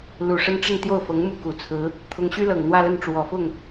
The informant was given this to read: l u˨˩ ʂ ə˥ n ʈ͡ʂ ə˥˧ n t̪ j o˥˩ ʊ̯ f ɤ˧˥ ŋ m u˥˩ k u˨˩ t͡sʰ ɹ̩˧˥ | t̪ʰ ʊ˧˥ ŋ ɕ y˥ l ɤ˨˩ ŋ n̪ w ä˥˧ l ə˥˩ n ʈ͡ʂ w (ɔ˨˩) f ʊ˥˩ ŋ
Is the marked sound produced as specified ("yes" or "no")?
yes